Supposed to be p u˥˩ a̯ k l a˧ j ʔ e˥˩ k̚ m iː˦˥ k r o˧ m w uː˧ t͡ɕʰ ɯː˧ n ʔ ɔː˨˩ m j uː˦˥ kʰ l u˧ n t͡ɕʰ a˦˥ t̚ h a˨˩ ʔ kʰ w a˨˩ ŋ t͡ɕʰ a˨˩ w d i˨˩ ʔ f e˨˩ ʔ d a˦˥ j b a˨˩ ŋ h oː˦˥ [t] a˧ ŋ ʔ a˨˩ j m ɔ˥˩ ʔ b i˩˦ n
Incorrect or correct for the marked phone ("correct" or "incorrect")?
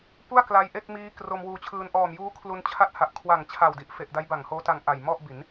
correct